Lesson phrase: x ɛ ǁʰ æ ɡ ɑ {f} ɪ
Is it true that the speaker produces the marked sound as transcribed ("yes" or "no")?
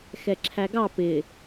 no